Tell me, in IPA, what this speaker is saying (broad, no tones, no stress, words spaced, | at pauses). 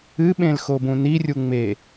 ɨɓẽl xobũnirʲu ŋ͡me